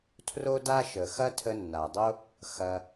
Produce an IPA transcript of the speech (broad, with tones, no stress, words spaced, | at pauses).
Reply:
tʰro˦da˦ʃə˨ xɐ˦tʰə˧nːa˨dˤo˦ | xɐ˧